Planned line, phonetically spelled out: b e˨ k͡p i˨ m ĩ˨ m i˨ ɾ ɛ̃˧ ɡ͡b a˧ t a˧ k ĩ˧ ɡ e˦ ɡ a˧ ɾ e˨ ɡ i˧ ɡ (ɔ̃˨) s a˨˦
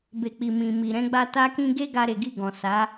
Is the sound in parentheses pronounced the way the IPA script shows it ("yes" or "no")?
yes